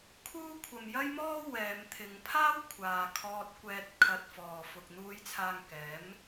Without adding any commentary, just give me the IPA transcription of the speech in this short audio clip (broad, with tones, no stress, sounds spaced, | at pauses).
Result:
kʰ uː˥ kʷʰ ɐ˧ m j ɐ˥ j m ɔː˥ w ɛː˨˧ m t̪ʰ ɪ˨˧ ŋ pʰ aː˥ w kʷʰ aː˨ kʰ ɔː˧ t̚ kʷ ɛː˧ t̚ kʰ ɐ˧ t̚ f ɔː˨ f ʊ˨ k̚ n̪ uː˨˧ j t͡sʰ aː˨ ŋ k ɛː˨˥ m